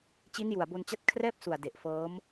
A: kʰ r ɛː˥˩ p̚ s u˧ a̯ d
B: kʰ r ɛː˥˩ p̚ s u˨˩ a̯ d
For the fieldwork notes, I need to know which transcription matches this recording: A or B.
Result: B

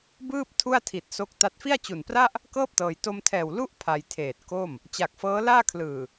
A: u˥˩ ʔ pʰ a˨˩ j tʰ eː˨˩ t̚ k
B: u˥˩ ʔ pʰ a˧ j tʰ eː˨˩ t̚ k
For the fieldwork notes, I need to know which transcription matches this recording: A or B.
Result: B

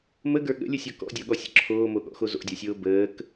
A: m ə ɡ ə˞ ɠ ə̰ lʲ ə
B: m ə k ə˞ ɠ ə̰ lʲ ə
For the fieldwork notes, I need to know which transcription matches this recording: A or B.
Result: A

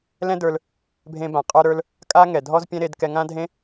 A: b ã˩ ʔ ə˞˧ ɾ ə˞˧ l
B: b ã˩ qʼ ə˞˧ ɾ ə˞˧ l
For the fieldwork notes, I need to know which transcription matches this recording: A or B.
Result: B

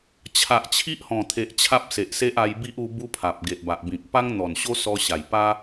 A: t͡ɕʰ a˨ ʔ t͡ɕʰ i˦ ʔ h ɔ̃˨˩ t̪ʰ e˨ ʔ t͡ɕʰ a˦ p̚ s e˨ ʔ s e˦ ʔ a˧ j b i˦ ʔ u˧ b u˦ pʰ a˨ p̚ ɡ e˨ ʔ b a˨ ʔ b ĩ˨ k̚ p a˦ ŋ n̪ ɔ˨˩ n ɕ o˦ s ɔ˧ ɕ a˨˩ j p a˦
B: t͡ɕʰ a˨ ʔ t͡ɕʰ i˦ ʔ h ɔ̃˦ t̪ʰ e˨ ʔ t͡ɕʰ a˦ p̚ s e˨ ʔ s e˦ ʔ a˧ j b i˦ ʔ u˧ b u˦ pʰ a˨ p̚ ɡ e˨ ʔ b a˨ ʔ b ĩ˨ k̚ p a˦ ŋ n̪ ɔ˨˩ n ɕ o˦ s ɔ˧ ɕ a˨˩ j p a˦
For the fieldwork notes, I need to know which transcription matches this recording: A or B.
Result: A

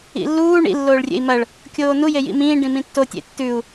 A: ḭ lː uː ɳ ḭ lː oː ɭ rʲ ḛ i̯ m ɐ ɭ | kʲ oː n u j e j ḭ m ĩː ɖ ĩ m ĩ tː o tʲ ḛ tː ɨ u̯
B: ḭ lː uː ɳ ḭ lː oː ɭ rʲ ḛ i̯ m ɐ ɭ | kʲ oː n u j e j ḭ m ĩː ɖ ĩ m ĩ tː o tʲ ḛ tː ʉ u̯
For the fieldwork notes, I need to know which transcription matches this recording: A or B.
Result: B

